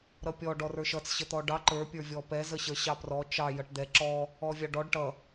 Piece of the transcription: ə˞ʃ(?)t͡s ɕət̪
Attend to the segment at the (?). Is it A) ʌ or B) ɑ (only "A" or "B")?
A